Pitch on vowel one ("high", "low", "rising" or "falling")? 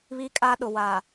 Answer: high